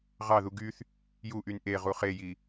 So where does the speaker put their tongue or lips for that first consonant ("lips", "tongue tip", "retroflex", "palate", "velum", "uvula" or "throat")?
uvula